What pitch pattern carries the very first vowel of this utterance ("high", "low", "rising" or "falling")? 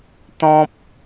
high